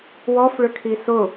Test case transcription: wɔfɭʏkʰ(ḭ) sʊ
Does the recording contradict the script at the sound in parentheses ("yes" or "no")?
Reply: yes